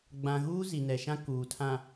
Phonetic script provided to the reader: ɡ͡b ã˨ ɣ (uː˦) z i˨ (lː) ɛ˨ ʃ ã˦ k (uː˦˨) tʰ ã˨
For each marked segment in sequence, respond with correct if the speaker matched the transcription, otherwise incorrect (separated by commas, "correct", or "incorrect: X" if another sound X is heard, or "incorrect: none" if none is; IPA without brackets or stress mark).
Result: correct, incorrect: n, incorrect: uː˨